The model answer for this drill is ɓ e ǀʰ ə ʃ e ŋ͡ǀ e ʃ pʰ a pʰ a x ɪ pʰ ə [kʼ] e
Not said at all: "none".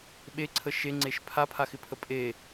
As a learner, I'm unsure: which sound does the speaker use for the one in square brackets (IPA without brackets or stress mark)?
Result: pʼ